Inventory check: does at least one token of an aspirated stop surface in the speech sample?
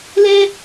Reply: no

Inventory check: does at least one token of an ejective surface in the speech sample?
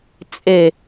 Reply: yes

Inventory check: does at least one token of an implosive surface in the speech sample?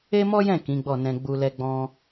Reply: no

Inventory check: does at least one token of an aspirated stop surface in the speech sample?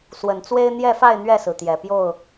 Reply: no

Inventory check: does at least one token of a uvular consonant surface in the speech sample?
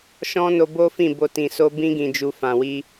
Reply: no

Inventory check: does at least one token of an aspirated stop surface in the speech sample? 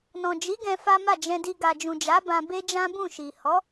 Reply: no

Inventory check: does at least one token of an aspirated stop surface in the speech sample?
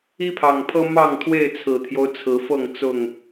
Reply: yes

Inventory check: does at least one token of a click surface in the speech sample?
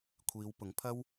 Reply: no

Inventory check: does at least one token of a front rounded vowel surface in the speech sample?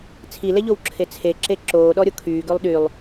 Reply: yes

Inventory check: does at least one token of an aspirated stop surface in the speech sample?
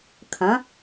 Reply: yes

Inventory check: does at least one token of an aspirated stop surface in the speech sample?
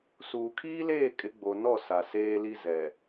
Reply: yes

